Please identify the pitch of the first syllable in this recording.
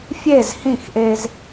falling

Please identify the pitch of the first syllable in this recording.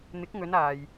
rising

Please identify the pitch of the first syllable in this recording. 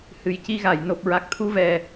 low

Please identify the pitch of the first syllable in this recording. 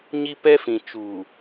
high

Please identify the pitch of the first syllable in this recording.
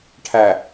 low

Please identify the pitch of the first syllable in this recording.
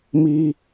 high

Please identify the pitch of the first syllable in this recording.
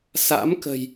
rising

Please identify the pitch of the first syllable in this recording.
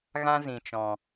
high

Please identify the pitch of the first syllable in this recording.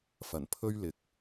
low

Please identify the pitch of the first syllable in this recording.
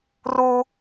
high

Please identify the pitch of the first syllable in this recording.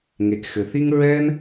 low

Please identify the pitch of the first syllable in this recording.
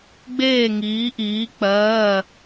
falling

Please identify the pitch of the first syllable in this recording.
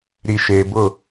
low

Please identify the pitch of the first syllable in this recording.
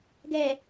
low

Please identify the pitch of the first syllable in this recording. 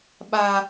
high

